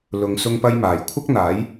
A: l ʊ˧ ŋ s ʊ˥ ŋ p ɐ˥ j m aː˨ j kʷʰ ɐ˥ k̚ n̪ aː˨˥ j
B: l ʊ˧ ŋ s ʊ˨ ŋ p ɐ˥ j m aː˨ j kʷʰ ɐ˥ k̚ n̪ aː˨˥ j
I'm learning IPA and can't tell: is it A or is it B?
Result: A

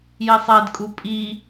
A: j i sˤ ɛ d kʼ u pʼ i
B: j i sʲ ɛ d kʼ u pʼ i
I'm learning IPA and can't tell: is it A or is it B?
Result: A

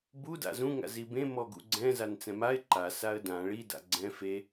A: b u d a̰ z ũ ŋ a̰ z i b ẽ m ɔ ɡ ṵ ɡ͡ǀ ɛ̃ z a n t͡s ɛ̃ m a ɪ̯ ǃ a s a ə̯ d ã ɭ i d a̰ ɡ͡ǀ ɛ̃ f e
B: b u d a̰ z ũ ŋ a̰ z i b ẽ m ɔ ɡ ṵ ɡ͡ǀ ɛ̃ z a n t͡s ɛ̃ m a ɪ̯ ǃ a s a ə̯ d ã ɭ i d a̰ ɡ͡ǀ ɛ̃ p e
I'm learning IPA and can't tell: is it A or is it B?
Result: A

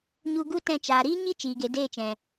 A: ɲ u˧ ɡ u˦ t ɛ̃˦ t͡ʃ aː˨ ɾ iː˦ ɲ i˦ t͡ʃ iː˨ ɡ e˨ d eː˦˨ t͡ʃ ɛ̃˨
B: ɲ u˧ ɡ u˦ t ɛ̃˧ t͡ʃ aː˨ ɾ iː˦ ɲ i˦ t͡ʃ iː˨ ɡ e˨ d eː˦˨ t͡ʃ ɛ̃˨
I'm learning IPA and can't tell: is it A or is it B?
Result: B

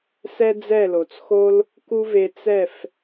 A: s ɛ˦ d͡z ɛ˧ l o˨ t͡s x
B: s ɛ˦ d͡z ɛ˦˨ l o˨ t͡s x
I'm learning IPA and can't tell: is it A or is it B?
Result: B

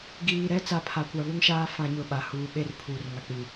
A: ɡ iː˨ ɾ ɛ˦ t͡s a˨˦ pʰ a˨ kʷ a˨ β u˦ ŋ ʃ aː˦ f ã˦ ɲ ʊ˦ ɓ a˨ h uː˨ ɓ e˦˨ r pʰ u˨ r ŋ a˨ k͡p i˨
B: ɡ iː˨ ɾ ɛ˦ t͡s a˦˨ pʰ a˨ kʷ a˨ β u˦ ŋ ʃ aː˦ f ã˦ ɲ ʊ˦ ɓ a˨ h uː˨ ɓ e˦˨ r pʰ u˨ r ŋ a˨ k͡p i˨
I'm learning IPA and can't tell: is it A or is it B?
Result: B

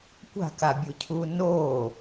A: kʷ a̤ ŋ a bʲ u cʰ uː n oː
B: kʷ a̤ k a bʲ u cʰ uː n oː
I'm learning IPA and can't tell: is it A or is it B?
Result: B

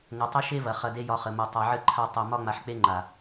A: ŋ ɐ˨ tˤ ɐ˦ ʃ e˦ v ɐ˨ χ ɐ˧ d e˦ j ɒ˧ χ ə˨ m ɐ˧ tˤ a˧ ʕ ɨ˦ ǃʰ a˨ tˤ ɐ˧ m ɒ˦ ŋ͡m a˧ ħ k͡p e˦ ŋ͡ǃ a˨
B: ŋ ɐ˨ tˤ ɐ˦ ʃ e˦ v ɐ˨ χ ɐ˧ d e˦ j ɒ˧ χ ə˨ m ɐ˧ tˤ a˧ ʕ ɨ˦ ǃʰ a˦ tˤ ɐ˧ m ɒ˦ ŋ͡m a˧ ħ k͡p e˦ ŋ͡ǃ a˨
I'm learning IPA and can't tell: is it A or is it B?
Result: B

